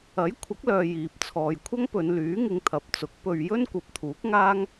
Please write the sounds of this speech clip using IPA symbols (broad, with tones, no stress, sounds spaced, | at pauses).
ɐ˨˥ j kʷʰ ɐ˨˥ k̚ l œː˨ j iː˨ p̚ t͡sʰ ɔː˨ j kʷʰ ɐ˥ ŋ p ɵ˨˧ n l yː˨˥ ŋ ɪ˧ ŋ t̪ʰ ɐ˨ p̚ t͡s ʊ˨˥ k̚ p ɵ˧ ɥ j ɵ˥ n kʷ ɐ˨˥ p̚ t̪ʰ uː˨˥ k̚ ŋ aː˥ ŋ